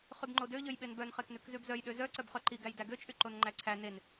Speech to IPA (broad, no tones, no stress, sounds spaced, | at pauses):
χ y b ŋ͡ǃ o d ø ʎ ø j ɓ e n b œ n χ e k n ʉ k z ʉ b z œ j ɗ ø z œ ǀ œ b χ œ ǃ i ɡ æ j d æ ɡ ø t͡ʃʼ y ǃ o n ŋ͡ǃ æ ǀʰ æ n e n